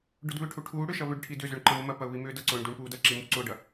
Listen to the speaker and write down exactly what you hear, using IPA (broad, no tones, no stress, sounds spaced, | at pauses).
ɖ ʊ d β ʏ ʈʰ u ʈʰ uː ɽ ʏ ʃ ɐ β ʏ ɖ ʈʰ i d ʏ z ʏ ɳ ǃ ɐ m ʊ m ɐ p ɐ ʊ̯ β i m ʏː d ɐ ǀ ʊː ɳ d u ɳ p uː d ɐ ǁ i m u ǀ ʊː ɖ ɐ